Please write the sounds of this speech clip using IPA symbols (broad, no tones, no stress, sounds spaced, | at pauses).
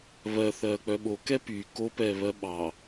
β ɜ θ ɜː k͡p œ ɓ o k ɛ p y k o p ɛː β ɜ ɓ ɑ